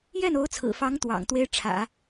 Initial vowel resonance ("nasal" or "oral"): oral